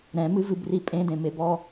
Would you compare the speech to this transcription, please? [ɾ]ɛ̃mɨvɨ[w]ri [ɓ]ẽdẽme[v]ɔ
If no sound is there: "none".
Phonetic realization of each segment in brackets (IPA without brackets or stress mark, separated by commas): ɾ, b, pʼ, b